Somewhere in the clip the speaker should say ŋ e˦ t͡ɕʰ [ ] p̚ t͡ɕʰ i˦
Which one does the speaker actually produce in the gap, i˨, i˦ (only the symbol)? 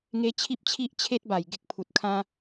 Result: i˦